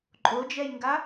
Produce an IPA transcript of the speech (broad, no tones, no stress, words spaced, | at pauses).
ǃʼod͡ʒɛjŋɡa